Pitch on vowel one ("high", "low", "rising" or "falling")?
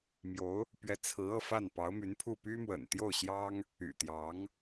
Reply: rising